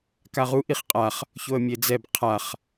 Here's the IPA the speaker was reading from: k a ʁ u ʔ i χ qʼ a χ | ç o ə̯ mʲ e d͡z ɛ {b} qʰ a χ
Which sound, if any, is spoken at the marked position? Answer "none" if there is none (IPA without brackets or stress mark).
b